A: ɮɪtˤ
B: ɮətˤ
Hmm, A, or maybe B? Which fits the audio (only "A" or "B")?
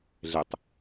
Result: A